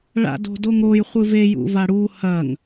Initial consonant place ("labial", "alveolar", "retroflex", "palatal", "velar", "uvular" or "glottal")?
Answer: retroflex